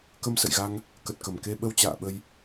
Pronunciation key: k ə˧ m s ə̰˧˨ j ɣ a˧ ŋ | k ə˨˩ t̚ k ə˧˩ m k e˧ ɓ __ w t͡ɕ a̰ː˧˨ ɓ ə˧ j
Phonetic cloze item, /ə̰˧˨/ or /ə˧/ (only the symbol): ə˧